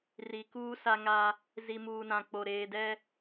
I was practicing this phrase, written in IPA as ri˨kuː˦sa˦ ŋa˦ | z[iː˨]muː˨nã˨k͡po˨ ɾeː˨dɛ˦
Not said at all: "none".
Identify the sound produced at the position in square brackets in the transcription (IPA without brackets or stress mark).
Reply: i˨